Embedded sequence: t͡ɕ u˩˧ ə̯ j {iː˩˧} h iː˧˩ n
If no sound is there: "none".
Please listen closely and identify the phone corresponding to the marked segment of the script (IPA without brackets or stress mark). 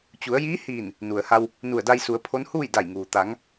iː˧˥